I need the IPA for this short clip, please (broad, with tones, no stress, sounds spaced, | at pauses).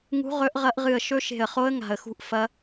ŋ ṳ˦˥ ʁ ɵ˦˥ ʔ ʁ ɐ˦˥ ʔ ʁ ɨ˦˨ ə̯ ʃ ɵ˦˥ ʃ e̤˦˨ ə̯ χ o˦˥ ə̯ ŋ a̤˦˨ ə̯ x ṳ˦˥ ʔ f ɐ˦˥